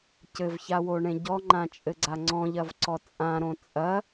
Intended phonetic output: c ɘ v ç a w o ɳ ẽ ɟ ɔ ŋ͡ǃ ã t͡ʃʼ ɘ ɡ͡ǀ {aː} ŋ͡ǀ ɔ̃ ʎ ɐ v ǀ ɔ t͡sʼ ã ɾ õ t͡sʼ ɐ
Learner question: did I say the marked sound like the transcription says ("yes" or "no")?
no